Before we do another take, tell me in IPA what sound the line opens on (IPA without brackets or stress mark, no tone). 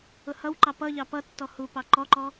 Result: ʊ